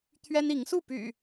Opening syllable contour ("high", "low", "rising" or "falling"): high